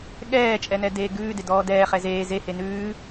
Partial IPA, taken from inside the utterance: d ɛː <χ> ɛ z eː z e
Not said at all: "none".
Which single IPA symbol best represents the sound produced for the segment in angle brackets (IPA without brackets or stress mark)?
χ